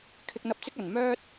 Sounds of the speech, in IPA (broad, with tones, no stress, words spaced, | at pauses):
kʰɪ˧k̚n̪ɐ˧p̚t͡sɪ˥k̚ ɐ˨˩nmœː˥t̚